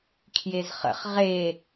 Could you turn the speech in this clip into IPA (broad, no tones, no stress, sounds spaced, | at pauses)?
kʰ j e z χ ə̰ χ ʁ e